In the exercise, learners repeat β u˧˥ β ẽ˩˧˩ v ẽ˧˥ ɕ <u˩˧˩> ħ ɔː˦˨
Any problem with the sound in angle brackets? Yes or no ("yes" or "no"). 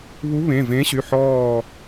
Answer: yes